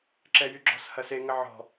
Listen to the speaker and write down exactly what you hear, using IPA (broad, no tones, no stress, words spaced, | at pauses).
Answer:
ǁɛjyɡ͡ǁɔ̤shɐ seŋə ʕɔ̤